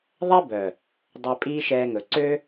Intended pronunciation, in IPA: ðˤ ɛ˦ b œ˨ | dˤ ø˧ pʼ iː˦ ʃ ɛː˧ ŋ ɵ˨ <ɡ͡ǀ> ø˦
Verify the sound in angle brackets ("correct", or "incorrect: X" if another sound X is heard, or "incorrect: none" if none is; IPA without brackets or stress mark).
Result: incorrect: ǀ